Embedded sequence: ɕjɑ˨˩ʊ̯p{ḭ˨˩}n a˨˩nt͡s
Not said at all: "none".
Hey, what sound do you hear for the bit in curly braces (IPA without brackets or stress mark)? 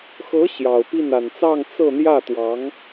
i˥˩